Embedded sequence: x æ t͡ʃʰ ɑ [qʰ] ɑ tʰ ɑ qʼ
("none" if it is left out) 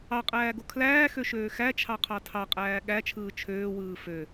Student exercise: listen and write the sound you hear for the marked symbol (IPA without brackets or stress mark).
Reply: qʰ